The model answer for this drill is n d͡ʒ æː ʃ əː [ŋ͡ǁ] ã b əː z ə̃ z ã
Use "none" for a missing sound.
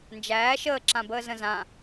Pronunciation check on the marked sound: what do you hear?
ǁ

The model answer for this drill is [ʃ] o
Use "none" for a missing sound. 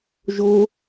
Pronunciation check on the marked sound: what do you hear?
ʒ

